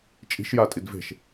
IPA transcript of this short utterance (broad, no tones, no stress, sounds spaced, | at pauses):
t͡ʃʼ i̤ ʃ j a tʼ i d v e̤ ʃ